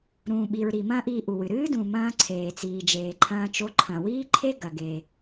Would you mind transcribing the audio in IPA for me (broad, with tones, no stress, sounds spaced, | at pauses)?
ɾ ũː˩ ɓ i˩ ɹ ɾ i˩ m ɐ̃ː˥ ʔ iː˧ ʔ u˩ w ɨ˩ ɾ ɨː˥ d ũ˩ m ɐ̃ː˧ ǀʰ eː˩ t͡s iː˩ d͡ʒ eː˩ ǃʰ ɐ̃ː˧ t͡ʃ o˧ ǃʰ ɐ̃˩ w iː˥ ǃʰ e˥ ɡ ɐ˩ ɡ e˩